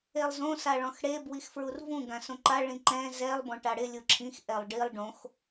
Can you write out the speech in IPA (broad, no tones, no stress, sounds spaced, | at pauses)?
e lˠ z õ s a ɭ ɔ̃ x ɽ e b w i x f ɹ u r v ũ ɡ ã s õ ǃ a ɭ ĩ ǃ ɛ̃ z ɛ lˠ b ɔ̃ ʈ a ɽ ɪ lʲ u ǁʰ ĩ x ʔ ɛ lˠ ɖ i lˠ ɖ õ x